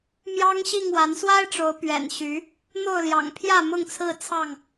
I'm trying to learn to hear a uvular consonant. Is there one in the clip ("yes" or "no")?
no